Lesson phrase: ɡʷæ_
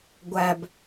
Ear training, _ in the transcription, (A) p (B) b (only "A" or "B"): B